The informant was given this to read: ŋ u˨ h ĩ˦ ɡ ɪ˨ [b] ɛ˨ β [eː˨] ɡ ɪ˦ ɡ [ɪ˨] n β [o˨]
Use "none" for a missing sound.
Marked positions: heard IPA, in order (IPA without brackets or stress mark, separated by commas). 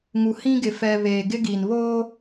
f, eː˨, i˨, o˦